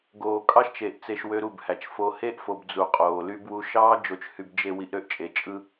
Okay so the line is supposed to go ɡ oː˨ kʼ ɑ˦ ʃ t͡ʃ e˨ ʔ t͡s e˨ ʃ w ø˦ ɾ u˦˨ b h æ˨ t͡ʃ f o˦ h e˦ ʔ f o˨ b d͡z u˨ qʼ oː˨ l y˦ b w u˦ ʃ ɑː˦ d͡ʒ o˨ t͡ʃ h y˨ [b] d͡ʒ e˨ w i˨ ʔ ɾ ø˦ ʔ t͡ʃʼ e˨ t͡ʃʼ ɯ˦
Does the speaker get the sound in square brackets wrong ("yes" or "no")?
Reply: no